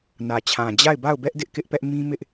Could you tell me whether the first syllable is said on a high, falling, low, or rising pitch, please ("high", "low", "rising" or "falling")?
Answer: low